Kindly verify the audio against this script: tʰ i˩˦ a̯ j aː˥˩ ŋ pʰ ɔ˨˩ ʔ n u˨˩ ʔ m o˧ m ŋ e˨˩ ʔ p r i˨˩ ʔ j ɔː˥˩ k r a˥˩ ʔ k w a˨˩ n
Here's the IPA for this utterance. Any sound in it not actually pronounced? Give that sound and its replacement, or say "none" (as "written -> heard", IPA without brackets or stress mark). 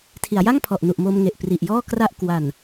aː˥˩ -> a˥˩